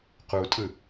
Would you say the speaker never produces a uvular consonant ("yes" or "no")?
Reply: no